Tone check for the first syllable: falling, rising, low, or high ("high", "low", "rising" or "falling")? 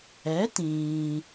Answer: rising